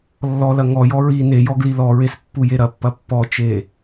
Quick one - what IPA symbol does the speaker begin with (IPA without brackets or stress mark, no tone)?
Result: lː